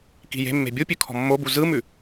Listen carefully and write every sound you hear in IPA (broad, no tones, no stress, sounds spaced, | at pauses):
k i̤ j e̤ mː e̤ bʲ u pʲ ʉ kʰ ɔ̤ mː o b u z ɯ m ʉ